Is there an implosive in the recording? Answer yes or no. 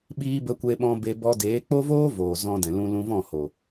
yes